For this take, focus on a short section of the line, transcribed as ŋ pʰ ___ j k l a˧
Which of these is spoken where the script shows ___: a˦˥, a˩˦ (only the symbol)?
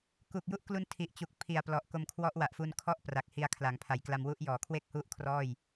a˩˦